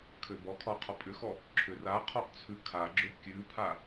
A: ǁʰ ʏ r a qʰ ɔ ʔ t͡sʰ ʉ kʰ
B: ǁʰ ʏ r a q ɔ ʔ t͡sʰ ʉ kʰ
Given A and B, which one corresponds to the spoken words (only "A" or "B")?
A